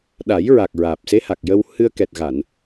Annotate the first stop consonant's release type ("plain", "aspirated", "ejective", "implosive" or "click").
implosive